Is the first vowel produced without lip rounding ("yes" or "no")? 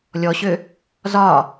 no